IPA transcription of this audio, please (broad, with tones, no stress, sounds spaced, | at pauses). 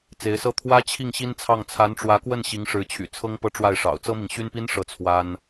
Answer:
t͡s e˧˥ ɪ̯ s ɤ˥ t̪ʰ w ä˥ t͡ɕʰ i˥˩ ŋ ɕ i˥ n t͡sʰ ɑ˥˩ ŋ t͡sʰ a˧˥ n ʈ͡ʂ w ä˧˥ k w ə˥˩ n ɕ i˧˥ ŋ ʂ ɻ̩˧˥ t͡ɕʰ y̰˨˩ t͡sʰ ɤ˥ ŋ p ɤ˥˧ ʈ͡ʂ w a˥˩ ɪ̯ ʂ ɑ̰˨˩ ʊ̯ t͡s ɤ˥ m i˨ ŋ ɕ y˥ n p i˥ n ʂ ɤ˥˩ t͡sʰ w a˥ n